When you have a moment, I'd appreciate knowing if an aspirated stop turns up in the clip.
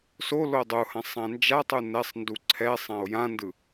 yes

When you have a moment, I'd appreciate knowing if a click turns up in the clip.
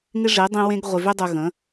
no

